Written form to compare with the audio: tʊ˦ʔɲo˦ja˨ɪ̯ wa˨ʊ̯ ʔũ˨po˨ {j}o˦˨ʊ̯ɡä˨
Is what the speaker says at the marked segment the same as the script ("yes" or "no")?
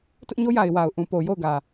yes